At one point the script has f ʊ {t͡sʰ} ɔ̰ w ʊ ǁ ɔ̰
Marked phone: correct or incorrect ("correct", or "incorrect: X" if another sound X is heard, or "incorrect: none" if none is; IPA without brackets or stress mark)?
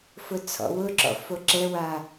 correct